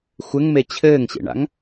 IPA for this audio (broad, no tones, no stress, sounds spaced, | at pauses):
xʷ ɘ ŋ m e t͡ɕʰ ɘː ŋ ɕ ḛ ɳ a̰ ŋ